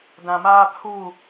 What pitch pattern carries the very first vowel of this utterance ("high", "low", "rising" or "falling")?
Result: low